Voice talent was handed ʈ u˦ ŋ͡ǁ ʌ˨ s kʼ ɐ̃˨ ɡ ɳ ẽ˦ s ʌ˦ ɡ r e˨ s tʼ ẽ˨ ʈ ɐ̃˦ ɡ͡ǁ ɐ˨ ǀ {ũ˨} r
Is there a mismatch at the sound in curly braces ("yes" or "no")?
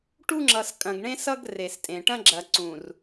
no